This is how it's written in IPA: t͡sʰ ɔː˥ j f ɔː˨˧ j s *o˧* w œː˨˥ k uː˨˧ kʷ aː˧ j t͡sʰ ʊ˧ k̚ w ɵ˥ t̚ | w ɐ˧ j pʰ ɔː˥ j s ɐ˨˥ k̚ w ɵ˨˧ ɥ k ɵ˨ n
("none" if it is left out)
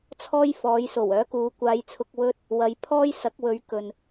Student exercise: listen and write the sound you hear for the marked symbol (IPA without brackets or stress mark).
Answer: o˨˩